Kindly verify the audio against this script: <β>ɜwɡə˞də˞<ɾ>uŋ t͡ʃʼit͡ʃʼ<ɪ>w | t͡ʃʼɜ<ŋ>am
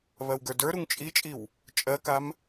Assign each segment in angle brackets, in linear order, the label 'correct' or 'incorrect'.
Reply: correct, correct, incorrect, incorrect

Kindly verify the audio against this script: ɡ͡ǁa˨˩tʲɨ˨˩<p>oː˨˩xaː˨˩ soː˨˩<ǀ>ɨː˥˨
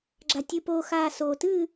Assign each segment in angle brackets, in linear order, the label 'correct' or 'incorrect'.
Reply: correct, incorrect

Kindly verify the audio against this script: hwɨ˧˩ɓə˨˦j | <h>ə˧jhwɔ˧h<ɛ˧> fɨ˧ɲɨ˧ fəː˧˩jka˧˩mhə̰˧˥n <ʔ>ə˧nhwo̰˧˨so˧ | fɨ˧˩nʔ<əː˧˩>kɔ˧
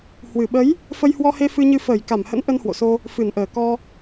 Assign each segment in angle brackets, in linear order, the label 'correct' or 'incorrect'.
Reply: incorrect, incorrect, correct, correct

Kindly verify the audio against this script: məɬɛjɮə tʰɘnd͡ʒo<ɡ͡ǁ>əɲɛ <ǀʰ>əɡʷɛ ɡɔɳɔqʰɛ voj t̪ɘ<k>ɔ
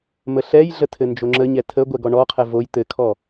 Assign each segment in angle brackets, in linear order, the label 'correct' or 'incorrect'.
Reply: incorrect, incorrect, incorrect

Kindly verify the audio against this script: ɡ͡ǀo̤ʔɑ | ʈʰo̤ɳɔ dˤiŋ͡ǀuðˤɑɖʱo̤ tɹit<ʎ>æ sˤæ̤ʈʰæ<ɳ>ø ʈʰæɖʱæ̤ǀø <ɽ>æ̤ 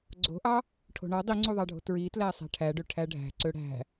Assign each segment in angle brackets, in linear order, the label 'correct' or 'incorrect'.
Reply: incorrect, incorrect, correct

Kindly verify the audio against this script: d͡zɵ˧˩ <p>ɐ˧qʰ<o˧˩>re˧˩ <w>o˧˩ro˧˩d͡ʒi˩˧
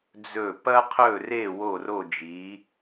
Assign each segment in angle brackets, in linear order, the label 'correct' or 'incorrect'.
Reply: correct, incorrect, correct

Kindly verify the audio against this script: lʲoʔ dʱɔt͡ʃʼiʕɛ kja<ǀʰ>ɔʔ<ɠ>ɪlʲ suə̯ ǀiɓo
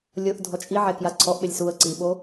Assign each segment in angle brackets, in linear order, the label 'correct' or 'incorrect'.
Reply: correct, incorrect

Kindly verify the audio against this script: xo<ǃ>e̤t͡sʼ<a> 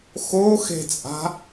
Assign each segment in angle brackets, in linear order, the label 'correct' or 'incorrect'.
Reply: incorrect, incorrect

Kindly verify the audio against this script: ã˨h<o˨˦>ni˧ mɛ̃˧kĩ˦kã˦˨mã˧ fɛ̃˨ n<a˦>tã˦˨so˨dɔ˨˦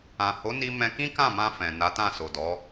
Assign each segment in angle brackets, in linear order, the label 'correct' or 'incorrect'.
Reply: correct, incorrect

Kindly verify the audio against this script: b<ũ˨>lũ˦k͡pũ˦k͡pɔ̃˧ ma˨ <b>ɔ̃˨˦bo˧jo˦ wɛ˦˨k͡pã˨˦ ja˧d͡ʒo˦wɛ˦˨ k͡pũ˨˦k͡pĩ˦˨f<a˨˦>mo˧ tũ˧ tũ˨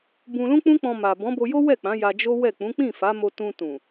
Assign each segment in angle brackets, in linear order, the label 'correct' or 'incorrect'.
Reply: incorrect, correct, correct

